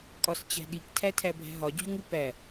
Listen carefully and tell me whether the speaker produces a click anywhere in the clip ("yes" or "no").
no